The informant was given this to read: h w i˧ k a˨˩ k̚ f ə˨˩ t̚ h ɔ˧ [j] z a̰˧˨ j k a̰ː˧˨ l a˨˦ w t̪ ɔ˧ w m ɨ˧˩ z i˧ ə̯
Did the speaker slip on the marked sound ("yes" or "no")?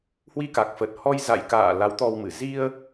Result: no